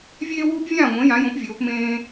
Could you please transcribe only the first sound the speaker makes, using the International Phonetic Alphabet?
vʲ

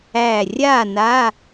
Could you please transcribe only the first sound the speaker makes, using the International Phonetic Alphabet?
æ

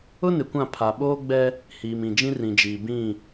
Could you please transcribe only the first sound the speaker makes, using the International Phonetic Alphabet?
ʊ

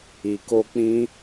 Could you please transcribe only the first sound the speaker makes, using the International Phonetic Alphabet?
i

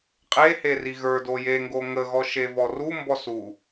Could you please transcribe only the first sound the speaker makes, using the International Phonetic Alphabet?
qʼ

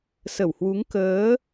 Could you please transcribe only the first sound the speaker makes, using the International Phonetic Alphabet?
s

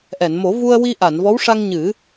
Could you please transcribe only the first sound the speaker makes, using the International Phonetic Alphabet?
ʔ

